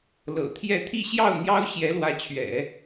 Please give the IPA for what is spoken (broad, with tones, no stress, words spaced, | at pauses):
lɤ̰˨˩t̪ʰjɛ˥˧ t̪ʰi˥˧ ɕjɑ˥˩ʊ̯n̪jɑ˥ʊ̯ ɕjɛ˧˥lwä˧˥t͡ɕʰɥɛ̰˨˩˦